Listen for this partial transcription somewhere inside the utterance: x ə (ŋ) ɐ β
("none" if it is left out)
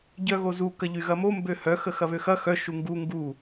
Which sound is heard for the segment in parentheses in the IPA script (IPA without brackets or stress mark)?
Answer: x